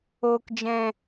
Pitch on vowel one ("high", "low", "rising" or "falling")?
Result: low